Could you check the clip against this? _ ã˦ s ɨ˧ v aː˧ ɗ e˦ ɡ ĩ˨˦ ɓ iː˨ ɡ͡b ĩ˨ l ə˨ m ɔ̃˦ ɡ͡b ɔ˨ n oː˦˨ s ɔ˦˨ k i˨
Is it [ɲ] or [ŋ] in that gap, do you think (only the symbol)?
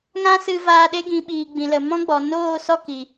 ŋ